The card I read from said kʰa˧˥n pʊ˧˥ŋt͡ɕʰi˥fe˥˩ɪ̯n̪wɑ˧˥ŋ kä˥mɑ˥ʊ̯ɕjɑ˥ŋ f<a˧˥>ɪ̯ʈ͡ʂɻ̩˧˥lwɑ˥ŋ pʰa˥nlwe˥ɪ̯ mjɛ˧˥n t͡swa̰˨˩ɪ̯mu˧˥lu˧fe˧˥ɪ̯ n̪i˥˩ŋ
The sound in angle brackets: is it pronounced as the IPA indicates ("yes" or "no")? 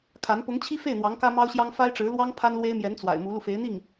no